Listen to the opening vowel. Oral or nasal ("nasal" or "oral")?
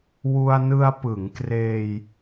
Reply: oral